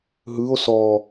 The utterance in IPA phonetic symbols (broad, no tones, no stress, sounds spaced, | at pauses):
ɦ ɯ o̯ s ɔ